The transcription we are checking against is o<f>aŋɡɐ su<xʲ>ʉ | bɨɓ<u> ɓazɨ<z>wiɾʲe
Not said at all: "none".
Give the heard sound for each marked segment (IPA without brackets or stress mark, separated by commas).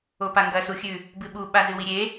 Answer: p, xʲ, u, none